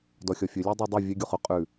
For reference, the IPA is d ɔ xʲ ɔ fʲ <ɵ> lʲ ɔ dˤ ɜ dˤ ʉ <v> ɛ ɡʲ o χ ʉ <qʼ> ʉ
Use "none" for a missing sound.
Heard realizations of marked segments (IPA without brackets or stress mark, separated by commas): ɵ, vʲ, qʼ